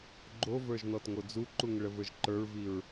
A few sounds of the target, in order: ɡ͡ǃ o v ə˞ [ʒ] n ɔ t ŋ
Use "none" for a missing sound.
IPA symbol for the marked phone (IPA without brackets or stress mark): ʒ